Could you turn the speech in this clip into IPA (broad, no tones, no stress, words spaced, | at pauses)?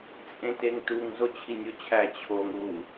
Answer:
t͡sʼẽteŋtuŋ zot͡ɕʰinʲot͡ɕʰæ t͡ɕʰoŋ ɾu